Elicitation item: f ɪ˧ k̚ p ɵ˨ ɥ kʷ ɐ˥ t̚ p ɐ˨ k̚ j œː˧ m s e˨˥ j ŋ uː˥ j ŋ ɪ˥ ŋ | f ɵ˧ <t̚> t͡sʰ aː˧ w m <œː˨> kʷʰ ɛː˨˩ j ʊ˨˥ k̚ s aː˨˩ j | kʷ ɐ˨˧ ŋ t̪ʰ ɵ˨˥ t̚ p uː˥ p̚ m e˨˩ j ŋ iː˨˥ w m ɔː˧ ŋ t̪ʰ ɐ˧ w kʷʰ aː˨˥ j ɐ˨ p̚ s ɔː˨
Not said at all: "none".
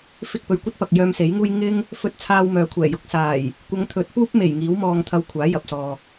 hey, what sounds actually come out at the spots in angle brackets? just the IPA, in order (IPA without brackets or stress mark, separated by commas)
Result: t̚, œː˨